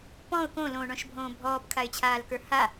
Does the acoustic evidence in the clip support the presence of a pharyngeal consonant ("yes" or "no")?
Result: no